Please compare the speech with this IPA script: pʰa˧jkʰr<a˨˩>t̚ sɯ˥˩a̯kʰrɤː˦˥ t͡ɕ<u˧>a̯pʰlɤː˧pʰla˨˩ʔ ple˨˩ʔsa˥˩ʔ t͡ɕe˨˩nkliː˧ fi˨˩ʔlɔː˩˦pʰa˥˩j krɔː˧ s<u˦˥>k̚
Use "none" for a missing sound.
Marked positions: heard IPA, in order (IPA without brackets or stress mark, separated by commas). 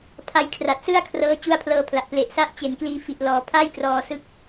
a˨˩, u˦˥, ɯ˦˥